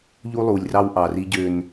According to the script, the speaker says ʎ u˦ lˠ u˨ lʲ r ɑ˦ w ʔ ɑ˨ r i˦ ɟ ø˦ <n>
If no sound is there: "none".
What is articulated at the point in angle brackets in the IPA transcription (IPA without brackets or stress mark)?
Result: n